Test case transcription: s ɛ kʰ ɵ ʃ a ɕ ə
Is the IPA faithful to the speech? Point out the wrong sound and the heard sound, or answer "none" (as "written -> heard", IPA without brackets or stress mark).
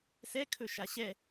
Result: ə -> ɛ